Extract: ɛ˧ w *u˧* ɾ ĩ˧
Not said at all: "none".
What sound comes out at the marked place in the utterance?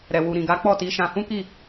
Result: u˧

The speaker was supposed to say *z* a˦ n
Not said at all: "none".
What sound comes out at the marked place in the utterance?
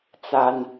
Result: t͡s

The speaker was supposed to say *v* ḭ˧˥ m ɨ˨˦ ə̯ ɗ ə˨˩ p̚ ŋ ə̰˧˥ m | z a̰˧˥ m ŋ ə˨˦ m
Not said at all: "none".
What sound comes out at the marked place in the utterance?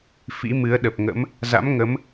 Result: f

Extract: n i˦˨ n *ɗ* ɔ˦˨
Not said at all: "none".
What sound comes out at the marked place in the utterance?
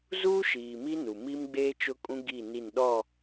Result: ɗ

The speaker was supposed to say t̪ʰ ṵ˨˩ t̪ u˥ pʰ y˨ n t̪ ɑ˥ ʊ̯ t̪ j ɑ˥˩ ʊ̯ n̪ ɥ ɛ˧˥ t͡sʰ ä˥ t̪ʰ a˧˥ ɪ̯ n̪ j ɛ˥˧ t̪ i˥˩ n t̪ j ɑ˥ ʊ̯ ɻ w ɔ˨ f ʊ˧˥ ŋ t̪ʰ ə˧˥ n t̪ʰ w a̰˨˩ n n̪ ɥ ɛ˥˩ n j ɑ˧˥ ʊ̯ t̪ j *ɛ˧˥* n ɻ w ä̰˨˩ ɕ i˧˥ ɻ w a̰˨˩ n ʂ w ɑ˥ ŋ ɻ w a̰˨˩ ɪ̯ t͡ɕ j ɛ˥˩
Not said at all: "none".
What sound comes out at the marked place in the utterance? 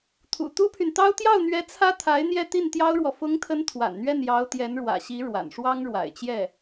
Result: ɛ˧˥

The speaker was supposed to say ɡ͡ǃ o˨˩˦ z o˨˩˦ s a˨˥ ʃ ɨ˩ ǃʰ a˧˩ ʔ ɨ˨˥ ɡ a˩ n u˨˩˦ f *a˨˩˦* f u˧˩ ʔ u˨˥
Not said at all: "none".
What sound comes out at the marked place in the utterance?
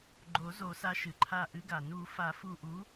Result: a˨˩˦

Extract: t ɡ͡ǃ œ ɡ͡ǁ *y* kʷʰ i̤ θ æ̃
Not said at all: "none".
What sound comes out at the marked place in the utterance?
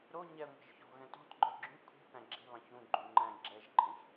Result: y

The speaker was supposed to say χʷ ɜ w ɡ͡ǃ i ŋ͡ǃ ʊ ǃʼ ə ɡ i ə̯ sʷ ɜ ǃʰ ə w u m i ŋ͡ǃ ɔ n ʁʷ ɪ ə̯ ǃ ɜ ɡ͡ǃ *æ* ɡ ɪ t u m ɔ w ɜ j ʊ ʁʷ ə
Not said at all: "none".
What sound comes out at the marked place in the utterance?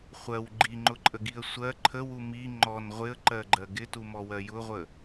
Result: ɜ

